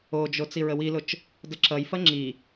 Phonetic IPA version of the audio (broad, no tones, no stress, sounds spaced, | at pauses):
o d͡ʒ o t͡s i ɹ ə w i l ʊ t͡ʃ | d ə ǁ ʌ j f ɐ ŋ͡ǁ i